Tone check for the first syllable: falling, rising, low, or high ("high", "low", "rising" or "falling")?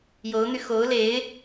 rising